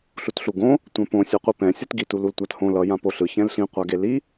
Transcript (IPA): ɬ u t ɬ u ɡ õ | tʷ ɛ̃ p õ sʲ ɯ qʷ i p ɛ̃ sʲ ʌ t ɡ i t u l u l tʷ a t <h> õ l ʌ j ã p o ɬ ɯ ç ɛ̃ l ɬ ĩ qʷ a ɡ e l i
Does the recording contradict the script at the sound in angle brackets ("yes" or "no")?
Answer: no